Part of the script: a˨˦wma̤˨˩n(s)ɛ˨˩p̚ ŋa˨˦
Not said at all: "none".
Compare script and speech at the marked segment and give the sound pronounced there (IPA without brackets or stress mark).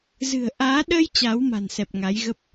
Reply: s